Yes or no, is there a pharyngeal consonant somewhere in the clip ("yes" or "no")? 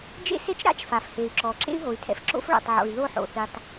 yes